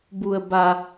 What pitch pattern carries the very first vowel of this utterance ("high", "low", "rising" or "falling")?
low